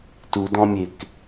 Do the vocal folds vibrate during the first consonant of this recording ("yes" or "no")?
no